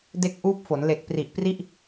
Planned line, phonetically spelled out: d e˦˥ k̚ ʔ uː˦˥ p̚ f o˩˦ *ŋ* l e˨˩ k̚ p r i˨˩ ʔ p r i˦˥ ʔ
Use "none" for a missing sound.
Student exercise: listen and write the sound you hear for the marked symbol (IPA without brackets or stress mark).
n